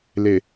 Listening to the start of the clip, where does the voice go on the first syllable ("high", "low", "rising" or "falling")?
low